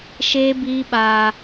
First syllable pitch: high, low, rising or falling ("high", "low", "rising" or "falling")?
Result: high